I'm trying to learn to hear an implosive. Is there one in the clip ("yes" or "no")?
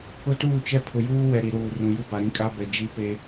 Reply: no